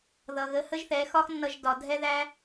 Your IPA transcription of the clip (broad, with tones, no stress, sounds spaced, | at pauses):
ð ʌ˨ ɣ ə˨˦ h ə˦ ʒ θ ɛ˨˦ x ɒ˦ x nː ʌ˧ ʒ d ɒ˨ dʱ ɛ˦ ð æ˦